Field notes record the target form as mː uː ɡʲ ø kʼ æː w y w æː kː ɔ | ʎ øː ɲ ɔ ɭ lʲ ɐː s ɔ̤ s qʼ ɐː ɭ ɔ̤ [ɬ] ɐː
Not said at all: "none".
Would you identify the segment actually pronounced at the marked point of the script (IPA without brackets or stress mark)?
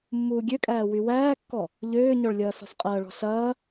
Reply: ɬ